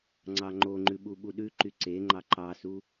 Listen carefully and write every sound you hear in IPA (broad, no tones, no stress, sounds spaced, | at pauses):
ŋ͡ǀ ɑ ŋ͡ǃ o ŋ͡ǃ ʉ ɓ u ɓ u ɗ ʉ ǃ y ǀ e ŋ͡ǃ ɑ ǃ ɑ s u